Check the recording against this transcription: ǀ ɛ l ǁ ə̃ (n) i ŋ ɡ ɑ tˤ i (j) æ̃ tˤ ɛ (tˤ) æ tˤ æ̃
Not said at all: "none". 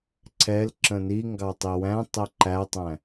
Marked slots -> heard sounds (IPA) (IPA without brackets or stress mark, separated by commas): n, w, ǃ